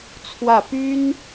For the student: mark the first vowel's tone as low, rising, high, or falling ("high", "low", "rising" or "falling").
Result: falling